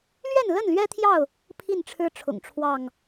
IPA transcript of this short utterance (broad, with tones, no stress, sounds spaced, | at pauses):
l ɥ ɛ˥˨ n l ə˥˨ n l ɥ ɛ˦ t̪ʰ j ɑ˥˨ ʊ̯ | pʰ i˥˨ n ʈ͡ʂʰ ɻ̩˦ ʈ͡ʂʰ ʊ̰˨˩ ŋ ʈ͡ʂʰ w ɑ˥˨ ŋ